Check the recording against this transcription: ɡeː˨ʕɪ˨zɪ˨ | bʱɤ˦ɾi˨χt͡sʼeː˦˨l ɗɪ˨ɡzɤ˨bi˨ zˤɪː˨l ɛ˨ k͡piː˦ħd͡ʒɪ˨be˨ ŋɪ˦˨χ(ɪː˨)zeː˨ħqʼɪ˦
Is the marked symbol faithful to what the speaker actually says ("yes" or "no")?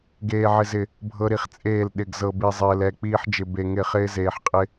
no